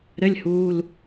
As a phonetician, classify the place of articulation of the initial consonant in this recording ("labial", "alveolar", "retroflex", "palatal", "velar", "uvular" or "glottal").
alveolar